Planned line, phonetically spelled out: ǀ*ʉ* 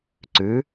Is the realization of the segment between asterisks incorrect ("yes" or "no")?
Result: no